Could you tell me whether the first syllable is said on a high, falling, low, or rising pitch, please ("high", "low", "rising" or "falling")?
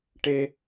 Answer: high